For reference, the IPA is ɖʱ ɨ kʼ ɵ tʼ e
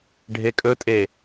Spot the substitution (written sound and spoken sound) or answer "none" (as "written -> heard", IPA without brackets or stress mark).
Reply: ɨ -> e